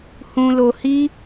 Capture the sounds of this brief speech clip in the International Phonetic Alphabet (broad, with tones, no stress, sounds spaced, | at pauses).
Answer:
h ũ˧ l o˧ h i˦